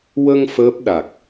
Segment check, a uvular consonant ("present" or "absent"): absent